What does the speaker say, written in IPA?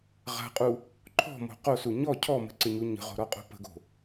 ʁ a̤ qʼ u | ǃʰ ɔ̤ m o̤ q o s u ɲ ɔ cʰ ɔ m ə̤ ǀ ɪ ɲ u ɲ ə̤ ʁ o̤ ɾ ɔ qʼ o̤ p ə̤ ɡ o̤

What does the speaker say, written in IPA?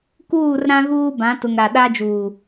k uː˦˨ r ɾ ã˦ ɣ uː˦ b ã˨˦ t ʊ˨ ŋ ɾ a˨ ɗ a˦ d͡ʒ uː˨

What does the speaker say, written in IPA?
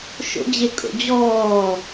ʃ o̰ d͡ʑ e kʼ o̰ d͡ʑ ɔː

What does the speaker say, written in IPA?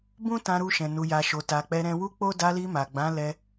b ũ˦ t ã˧ ɾ u˧ ʃ ɛ̃˨ n u˨ j a˨ ʃ o˨ t a˨ k͡p ɛ˧ ɾ ɛ̃˧ w u˦ k͡p o˦ d a˧ l i˧ m a˨ ɡ͡b ã˨˦ l ɛ˧

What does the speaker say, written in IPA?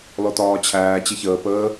l ɔ t ɒː t͡ɕʰ æː t͡ɕ ɪ ç əː p əː

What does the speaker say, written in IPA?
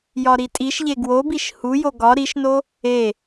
j ɒ ɾ i tʼ i ʃ ʎ e ɡ w o b i ʃ h u j o ɡ ɒ ɾ i ʃ n o | e

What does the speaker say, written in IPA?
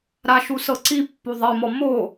ɾ a ʃ u s ɤ ǀ i pː u ðˤ ɛ m ɔ m o

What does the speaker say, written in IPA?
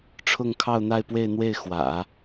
ʈ͡ʂʰ ʊ˥˧ ŋ kʰ ɑ˥˧ ʊ̯ n̪ a˥˧ ɪ̯ p w e˥˧ ɪ̯ n̪ w e˥˩ ɪ̯ x w ä̰˨˩˦

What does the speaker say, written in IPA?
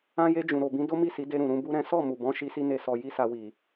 ã˧ j e˧ d͡ʒ ũ˨ ɾ o˨ b ĩ˨˦ d o˦ m i˦˨ s i˨˦ d e˧ ɾ ũ˨ ɾ ũ˧ b u˦ ɾ ɛ̃˦ s ɔ˦˨ m u˨ b ɔ̃˨˦ ʃ i˦ s i˦ n e˦˨ s ɔ˧ j i˦ s a˧ w i˨

